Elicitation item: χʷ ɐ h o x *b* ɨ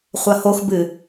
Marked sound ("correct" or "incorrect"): correct